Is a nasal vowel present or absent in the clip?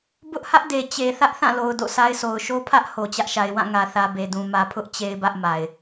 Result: present